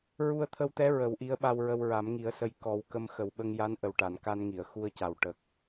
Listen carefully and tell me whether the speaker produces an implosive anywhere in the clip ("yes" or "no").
yes